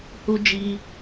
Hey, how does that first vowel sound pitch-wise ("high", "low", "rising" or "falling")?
high